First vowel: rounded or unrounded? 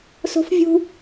rounded